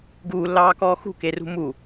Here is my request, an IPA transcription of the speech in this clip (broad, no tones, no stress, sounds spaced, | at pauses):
ɡ uː lː ɑː k ɔː x ṳ k e r ṳ m u